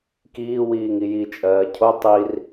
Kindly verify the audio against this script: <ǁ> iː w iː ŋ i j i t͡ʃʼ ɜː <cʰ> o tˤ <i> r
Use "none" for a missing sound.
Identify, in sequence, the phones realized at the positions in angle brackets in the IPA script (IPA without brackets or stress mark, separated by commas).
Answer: k, cʰ, i